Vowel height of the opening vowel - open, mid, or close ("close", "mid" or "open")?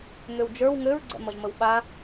mid